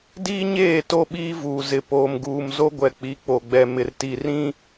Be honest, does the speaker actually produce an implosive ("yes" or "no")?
yes